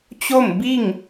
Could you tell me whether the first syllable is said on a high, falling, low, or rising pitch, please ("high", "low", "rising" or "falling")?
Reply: falling